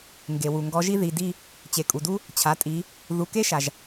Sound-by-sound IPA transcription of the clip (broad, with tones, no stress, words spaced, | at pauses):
ŋɡe˩wu˩ ŋɡɔ˨˦ʒi˥ ði˩˧˩di˥˧ | t͡ɕe˩kʼu˩du˥ | t͡ɕʰa˩˧˩tʼi˨˦ | ðu˩˧˩ke˥ʃa˩ʒ